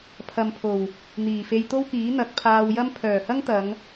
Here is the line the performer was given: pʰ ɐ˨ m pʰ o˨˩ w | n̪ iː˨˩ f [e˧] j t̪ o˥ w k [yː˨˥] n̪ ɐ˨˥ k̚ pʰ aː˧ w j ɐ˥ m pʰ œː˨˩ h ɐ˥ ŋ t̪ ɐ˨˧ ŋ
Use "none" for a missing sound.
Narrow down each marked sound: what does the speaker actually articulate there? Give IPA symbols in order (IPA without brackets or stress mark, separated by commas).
e˧, iː˨˥